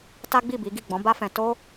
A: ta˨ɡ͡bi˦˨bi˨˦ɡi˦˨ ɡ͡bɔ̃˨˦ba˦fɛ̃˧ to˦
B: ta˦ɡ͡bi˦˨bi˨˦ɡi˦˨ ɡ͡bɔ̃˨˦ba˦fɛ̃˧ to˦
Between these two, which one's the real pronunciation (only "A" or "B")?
B